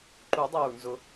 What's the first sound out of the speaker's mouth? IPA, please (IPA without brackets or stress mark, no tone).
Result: ǃ